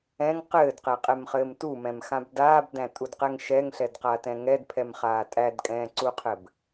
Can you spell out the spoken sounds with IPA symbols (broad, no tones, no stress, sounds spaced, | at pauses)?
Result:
ɛ̃ ŋ q ɘː d q ɛ qʼ ɛ m χ ɘː m t u m ɛ̃ m x ã b d aː b d æ̃ tʼ u d q ɛ ŋ ʃ ɛ ŋ ɬ ɛ d q a t ɛ̃ ŋ ɛ d pʰ ɛ m χ aː tʼ æ d kʼ ɛ̃ː ǀ u qʰ ɘ b